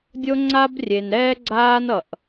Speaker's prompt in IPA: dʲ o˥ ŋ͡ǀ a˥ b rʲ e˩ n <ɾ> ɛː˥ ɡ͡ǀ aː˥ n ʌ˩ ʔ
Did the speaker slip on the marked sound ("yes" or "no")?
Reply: no